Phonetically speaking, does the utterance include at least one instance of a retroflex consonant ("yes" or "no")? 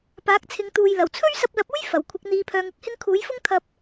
no